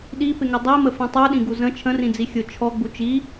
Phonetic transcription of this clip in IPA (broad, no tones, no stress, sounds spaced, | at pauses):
ɗ i p ɪ ŋ ɪ dˤ i m ə f ĩ tˤ u ɗ ĩ ɡ u z ə̃ t͡ʃʰ ə̃ r ĩ d͡z i xʲ ʊ t͡ʃʰ ɔ ɡ͡b u t͡ʃ i